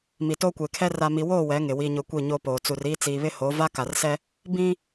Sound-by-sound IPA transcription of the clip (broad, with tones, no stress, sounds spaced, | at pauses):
m i˨ t oː˦ kʷ eː˨ kʰ ɛ˦ r a˨ m i˨ w oː˦˨ w ɛ˨˦ ŋ ɪ˨ w i˨ ɲ ʊ˨ kʷ i˦˨ ɲ oː˦ p oː˨ t͡s u˨ r iː˦ t͡s iː˨ β ɪ˦ h o˨˦ v a˦ k a˨ r s ɛ˦ | b ĩ˦